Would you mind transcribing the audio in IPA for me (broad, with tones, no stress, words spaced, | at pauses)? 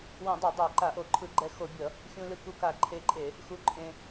wõ˧˩˧dˤa˧˩˧ dˤa˧˩˧ ǃa˧˩˧ʔo˧˩˧ ǃʰɯ˧˩˧ɡ͡ǃɛ˧xo˧˩˧bʲʌ˧˩˧ | xʲũ˧lɯ˧ ku˧ka˧˩˧ǃʰe˧ǃʼe˧˩˧ | xu˧ǃʼẽ˧